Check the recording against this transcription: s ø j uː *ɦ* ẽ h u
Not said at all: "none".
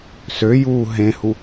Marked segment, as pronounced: ɦ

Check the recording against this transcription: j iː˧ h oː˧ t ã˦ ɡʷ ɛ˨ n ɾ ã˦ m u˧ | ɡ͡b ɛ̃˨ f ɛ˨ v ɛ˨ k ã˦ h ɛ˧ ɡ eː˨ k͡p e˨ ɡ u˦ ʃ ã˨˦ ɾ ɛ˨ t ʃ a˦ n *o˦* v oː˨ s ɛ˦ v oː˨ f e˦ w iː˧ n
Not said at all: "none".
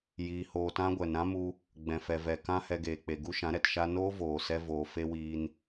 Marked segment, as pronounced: oː˦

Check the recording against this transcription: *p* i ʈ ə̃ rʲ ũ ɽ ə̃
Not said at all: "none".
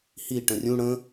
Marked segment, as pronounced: h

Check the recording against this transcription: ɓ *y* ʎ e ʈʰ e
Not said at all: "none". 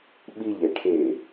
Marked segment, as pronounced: i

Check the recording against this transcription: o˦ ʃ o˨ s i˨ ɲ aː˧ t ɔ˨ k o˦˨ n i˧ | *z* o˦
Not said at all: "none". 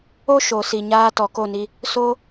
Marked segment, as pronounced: s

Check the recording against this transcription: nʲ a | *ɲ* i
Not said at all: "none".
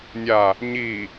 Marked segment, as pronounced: ɲ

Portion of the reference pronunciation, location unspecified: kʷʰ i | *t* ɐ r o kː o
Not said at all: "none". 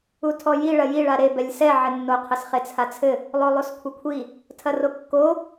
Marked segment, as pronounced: tʰ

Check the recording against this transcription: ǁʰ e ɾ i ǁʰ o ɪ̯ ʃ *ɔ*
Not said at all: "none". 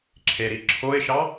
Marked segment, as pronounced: ɑ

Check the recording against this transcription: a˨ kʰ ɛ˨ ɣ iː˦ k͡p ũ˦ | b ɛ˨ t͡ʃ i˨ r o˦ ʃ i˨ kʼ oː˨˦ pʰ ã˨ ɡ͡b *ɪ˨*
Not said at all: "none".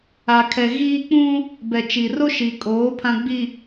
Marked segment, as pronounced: i˨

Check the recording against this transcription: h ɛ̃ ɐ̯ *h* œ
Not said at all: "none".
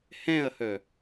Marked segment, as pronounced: h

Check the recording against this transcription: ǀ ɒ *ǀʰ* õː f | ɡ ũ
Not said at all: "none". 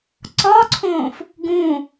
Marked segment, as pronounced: ǀʰ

